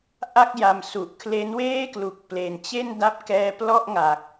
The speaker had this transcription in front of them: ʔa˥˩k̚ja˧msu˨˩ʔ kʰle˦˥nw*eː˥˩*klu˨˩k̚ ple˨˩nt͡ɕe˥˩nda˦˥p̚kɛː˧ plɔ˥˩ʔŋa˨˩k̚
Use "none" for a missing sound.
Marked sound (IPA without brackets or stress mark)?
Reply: eː˥˩